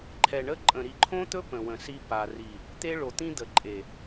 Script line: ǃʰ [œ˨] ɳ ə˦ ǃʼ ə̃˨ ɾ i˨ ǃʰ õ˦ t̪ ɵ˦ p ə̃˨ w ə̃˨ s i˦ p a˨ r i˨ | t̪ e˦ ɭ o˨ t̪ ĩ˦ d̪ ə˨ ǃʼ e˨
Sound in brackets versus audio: incorrect: ɛ˨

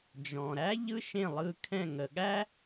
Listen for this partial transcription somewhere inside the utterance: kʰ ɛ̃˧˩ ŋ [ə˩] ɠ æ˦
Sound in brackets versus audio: correct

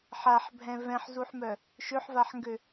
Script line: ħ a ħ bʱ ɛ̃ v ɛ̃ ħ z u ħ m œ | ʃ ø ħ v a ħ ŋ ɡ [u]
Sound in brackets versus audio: incorrect: ø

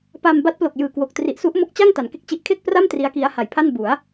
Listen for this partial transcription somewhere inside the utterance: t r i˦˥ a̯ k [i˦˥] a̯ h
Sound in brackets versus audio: correct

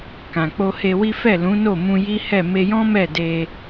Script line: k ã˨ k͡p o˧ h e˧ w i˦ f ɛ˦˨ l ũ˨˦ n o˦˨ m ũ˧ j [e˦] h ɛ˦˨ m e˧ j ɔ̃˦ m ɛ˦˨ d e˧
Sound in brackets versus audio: incorrect: i˦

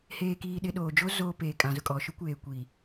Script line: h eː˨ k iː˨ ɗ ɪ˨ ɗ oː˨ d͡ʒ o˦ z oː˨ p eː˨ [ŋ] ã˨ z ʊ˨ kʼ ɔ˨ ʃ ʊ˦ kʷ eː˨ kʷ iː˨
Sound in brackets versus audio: incorrect: kʼ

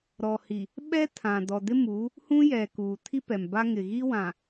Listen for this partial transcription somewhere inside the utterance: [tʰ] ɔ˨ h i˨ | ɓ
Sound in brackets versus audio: incorrect: ɾ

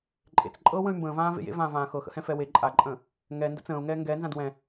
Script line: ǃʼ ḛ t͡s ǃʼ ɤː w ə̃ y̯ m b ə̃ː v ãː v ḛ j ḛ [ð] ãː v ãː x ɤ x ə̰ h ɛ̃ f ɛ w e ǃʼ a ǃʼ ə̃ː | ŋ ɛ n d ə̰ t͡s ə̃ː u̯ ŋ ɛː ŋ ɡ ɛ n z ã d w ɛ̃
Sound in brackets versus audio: incorrect: v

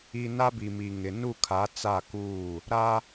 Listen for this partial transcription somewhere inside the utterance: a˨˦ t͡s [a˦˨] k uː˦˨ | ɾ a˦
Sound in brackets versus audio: correct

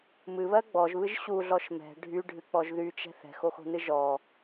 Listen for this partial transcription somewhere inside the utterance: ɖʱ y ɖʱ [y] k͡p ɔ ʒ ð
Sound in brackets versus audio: incorrect: ɨ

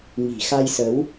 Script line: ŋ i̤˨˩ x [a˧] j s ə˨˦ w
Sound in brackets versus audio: correct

